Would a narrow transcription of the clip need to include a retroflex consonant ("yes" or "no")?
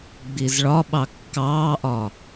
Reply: yes